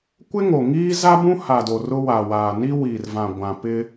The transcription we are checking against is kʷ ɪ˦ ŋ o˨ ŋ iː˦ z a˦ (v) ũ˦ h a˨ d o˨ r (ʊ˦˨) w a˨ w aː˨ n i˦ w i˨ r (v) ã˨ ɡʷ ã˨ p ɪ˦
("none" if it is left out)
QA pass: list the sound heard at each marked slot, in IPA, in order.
b, ʊ˦, v

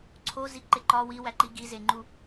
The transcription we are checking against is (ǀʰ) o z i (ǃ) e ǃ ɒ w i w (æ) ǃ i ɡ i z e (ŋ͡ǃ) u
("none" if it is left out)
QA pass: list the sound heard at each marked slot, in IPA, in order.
ǀʰ, ǃ, æ, ŋ͡ǃ

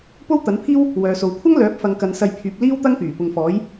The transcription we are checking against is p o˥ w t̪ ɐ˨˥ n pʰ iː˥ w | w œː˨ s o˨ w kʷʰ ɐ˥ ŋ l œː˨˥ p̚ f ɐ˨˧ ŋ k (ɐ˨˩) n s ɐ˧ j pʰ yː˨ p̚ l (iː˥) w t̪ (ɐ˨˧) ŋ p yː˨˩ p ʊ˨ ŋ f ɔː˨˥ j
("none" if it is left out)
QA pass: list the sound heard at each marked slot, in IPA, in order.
ɐ˨, iː˥, ɐ˥

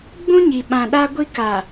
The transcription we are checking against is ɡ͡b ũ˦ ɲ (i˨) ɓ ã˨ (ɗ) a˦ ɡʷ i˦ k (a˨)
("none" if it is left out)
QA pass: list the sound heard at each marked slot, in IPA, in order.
i˨, ɗ, a˨

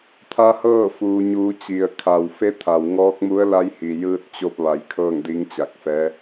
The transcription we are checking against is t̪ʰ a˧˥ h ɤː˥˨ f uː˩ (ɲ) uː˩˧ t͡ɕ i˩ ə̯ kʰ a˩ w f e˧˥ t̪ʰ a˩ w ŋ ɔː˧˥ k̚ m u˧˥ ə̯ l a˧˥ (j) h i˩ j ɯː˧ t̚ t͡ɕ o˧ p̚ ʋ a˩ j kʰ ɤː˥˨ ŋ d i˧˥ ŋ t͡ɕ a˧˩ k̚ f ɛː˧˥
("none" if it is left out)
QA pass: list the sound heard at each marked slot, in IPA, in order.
ɲ, j

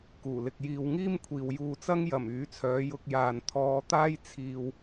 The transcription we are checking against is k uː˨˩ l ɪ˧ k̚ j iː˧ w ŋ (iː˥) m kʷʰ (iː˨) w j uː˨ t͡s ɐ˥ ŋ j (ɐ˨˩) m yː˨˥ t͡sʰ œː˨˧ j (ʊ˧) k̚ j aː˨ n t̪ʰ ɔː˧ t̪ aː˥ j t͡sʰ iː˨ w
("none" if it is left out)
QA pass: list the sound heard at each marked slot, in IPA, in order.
iː˥, iː˨, ɐ˨˩, ʊ˧

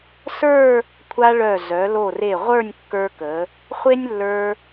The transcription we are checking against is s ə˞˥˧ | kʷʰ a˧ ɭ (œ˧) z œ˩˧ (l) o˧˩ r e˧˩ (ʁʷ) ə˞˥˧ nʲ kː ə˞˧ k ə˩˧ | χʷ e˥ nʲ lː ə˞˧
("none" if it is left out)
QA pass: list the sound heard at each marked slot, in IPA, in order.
œ˧˩, l, ʁʷ

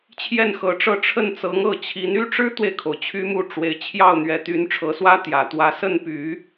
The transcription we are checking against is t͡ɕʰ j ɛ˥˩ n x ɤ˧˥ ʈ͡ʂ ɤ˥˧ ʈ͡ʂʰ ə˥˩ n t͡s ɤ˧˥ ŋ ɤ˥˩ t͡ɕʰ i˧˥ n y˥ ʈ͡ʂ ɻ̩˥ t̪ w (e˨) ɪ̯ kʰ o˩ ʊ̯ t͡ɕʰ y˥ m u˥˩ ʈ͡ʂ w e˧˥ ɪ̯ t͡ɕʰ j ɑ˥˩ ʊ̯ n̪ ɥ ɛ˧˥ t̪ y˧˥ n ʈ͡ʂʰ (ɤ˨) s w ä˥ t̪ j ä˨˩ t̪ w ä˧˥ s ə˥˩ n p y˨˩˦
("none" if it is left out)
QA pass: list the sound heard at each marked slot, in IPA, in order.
e˨, ɤ˧˥

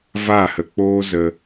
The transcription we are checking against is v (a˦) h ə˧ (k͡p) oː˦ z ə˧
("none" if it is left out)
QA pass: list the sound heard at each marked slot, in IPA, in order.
a˦˨, k͡p

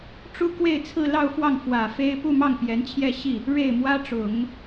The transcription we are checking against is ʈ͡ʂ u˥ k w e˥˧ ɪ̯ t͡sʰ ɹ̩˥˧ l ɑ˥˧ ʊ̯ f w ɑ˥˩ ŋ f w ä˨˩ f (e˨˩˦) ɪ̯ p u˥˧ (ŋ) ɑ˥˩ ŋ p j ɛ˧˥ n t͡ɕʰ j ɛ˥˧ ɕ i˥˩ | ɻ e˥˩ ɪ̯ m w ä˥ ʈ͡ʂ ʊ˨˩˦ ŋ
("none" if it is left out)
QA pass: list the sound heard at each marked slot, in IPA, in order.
e˥, m

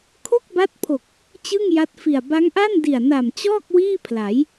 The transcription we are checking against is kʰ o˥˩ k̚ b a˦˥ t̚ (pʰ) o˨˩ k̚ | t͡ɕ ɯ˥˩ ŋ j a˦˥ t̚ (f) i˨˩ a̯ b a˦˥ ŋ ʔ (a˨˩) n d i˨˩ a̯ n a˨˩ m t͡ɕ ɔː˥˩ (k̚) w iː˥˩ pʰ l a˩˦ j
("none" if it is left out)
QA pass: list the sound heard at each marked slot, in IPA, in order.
pʰ, f, a˥˩, k̚

